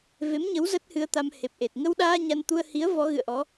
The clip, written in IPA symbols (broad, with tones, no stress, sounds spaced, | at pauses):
v e˨˦ m ɲ ə˨˦ w z ə˦˥ t̚ h ɨ˧ ə̯ t̪ a˧ m h e˨˩ p̚ ʔ e˨˩ t̚ ŋ ə˧ w ɗ aː˧ ɲ a˧ n t̪ u˧ ə̯ h i˨˦ ə̯ v ɔ˨˦ ɣ ɨ̰˧˨ ə̯ ʔ ɔ˨˦